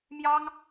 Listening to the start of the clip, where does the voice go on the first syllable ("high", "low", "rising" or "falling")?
high